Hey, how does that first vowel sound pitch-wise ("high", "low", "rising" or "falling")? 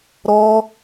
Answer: high